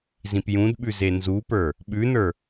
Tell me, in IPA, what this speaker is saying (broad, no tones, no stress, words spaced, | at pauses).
zĩpjũdɓʉ zenzupə˞ | ɓʉnə˞